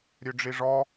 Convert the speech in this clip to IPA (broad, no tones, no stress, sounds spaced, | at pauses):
ɾʲ ø ɖ͡ʐ i ʐ ɔ